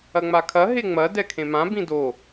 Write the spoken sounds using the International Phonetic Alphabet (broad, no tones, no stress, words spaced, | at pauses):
ɐŋ͡makʰɐ ɦeŋ͡mɐ dɛkʰẽmã bĩdo